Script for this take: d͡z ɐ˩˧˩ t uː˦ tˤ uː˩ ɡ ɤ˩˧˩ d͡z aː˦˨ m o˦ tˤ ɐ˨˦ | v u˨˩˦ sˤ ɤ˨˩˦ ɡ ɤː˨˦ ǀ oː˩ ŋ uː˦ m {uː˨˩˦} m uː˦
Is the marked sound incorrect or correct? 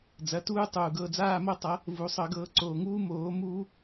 incorrect